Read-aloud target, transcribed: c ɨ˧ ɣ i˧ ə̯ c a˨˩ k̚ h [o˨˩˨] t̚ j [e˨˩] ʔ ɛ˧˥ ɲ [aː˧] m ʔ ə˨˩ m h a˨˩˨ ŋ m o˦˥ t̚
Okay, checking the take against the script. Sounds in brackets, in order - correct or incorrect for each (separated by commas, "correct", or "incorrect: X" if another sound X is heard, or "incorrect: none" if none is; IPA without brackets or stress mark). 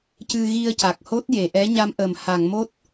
incorrect: o˦˥, incorrect: e˨˩˨, incorrect: a˧